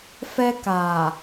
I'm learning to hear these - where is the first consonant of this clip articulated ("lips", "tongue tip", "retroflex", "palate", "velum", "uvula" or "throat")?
lips